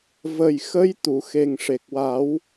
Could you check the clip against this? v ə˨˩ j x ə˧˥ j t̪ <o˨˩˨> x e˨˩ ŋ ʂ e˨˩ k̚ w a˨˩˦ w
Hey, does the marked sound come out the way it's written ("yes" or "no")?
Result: no